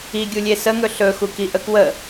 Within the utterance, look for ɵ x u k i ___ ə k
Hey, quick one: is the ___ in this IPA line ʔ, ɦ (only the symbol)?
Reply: ʔ